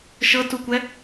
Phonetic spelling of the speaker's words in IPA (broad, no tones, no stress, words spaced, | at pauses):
ʃɤtukʷɛ